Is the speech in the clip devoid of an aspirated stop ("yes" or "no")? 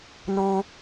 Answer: yes